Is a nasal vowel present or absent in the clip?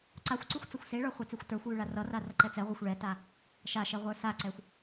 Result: absent